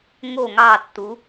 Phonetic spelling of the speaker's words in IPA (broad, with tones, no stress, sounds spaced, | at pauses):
ŋ o˧˩ ŋ ɑ˧˩ tː u˩˧